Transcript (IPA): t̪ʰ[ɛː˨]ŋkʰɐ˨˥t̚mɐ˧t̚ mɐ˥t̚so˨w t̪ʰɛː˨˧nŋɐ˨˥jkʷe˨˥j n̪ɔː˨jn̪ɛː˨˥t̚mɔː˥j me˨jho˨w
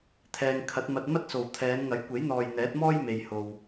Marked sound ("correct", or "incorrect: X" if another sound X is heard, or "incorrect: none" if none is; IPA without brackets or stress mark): correct